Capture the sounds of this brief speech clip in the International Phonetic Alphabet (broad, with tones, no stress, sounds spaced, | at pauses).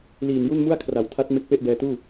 l iː˨˩ n j u˥˩ n m u˥˩ a̯ kʰ r a˩˦ w tʰ a˦˥ t̚ m e˦˥ k̚ p e˥˩ ʔ b ɛː˧ t uː˥˩